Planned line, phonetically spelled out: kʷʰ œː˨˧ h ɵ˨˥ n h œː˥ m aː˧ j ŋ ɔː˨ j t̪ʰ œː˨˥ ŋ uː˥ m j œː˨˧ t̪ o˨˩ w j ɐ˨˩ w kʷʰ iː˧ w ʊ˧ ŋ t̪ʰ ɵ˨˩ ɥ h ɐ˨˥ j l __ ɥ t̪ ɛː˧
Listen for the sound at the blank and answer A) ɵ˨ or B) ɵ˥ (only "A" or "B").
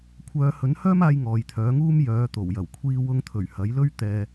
B